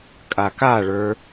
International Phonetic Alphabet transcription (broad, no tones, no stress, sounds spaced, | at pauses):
kʼ a k a ɭ ə˞